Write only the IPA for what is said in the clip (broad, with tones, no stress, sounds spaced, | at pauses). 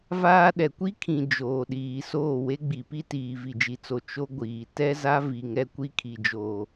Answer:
v aː˦ ɗ ɛ˨ kʷ i˦ kʰ ĩ˨ d͡ʒ oː˨ ɗ iː˨ s oː˦˨ w e˦ ɡ͡b i˨ p i˦ t iː˨ v i˨ d͡ʒ i˨ t͡s o˨ t͡ʃ o˦ ɡʷ iː˨ t ɛ˦ z a˦ v i˨ ŋ ɛ˦ kʷ i˦ kʰ i˨ d͡ʒ oː˨